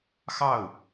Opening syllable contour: falling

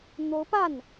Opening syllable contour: rising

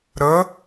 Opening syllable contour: rising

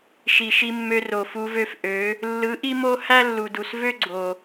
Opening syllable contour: low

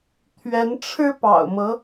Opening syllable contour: rising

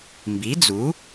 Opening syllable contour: rising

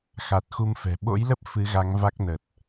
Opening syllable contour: low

